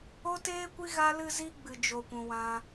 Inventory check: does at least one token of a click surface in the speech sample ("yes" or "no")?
no